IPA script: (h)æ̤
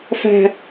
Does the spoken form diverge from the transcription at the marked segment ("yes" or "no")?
yes